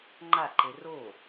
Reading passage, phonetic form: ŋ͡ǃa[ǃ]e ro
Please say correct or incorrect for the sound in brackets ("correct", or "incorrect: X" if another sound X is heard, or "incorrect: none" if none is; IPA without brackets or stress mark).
correct